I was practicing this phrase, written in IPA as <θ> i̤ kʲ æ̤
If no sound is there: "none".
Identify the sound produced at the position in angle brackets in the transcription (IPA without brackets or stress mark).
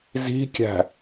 z